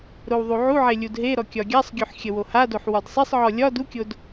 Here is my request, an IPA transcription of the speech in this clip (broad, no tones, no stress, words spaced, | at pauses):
ɾowðˤuʕuʕe lʲudɦeɾɔ kʲɒɡʲasˤɡʲoħ xʲəwohadoħ wɒdsˤesˤʕɔ lʲɒ dukʲod